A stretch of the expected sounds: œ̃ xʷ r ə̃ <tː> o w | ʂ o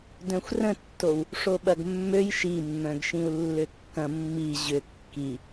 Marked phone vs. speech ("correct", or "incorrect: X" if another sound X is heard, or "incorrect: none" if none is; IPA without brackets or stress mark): correct